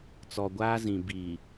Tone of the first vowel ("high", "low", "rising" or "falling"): low